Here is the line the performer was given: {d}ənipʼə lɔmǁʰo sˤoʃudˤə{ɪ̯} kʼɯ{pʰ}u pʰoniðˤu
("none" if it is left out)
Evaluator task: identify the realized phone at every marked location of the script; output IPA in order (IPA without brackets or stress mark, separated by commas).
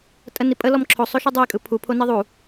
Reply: tʼ, ɪ̯, pʰ